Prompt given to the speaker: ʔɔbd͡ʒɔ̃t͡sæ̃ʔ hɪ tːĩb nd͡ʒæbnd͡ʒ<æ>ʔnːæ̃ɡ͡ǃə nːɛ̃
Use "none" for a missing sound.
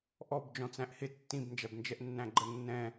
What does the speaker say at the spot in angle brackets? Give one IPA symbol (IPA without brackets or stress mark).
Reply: ɛ